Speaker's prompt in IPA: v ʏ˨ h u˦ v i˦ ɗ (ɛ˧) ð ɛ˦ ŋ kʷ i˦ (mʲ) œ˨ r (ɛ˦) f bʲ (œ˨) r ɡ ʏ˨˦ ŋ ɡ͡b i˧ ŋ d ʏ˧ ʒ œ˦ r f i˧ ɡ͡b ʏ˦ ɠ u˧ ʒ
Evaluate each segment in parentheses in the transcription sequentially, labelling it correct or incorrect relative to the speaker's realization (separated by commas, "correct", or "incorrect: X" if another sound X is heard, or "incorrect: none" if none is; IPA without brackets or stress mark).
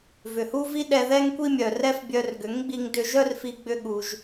correct, correct, correct, incorrect: œ˧